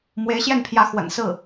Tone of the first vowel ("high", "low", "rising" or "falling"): rising